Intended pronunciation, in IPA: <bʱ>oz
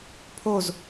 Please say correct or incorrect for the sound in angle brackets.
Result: incorrect